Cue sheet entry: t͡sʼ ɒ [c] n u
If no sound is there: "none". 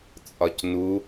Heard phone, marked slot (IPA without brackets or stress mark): c